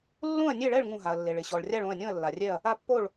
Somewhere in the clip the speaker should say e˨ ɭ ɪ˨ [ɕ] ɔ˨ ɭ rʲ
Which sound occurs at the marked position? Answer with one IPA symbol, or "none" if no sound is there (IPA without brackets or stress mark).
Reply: ɕ